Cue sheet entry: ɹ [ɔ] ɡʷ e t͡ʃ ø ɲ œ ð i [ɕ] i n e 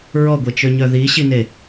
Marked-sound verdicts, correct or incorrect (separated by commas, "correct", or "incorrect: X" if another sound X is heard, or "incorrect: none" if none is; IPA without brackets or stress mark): correct, correct